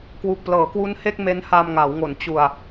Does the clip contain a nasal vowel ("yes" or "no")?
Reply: no